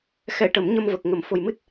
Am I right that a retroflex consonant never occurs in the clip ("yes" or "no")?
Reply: no